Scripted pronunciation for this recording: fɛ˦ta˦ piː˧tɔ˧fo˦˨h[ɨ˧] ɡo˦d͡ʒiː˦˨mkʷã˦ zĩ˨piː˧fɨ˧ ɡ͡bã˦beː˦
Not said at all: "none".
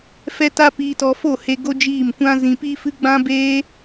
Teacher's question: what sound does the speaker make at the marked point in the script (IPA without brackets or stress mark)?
e˧